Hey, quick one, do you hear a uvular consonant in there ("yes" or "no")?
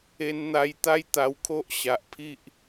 no